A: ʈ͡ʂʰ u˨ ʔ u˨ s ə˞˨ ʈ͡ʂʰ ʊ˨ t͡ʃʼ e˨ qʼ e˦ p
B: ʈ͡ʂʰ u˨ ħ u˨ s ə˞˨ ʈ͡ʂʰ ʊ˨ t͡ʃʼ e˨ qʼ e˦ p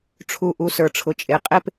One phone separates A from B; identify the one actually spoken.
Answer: A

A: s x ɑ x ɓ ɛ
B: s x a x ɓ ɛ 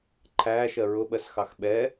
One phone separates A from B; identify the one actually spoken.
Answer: A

